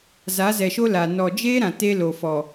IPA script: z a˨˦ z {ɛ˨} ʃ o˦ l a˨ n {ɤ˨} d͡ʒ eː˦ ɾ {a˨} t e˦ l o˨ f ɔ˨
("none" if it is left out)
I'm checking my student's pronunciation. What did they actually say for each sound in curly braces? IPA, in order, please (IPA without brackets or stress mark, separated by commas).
ɛ˨, ɔ˨, ã˨